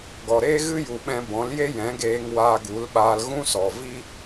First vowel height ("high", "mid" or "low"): mid